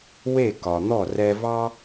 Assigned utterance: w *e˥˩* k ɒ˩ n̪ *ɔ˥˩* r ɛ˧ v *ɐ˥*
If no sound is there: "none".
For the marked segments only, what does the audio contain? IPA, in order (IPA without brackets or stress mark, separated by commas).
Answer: e˥˩, ɔ˥˩, ɑ˥